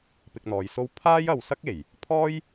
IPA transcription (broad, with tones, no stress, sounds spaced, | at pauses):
p ɪ˧ k̚ n̪ ɔː˨˧ j s o˥ w pʰ aː˥ j ɐ˨ w s ɐ˥ k̚ e˨˩ j | pʰ ɔː˥ j